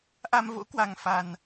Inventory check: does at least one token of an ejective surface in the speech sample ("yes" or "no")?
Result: no